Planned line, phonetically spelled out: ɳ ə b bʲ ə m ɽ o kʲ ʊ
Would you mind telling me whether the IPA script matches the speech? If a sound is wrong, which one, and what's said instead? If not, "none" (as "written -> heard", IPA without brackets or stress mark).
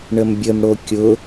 b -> m